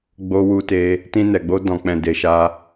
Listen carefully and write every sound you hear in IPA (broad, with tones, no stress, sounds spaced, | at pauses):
ɡ͡b o˧ w u˧ t e˧ | t ĩ˧ n ɛ˨ ɡ͡b o˧ d ɔ̃˨ k͡p ɛ̃˨ d e˨ ʃ a˧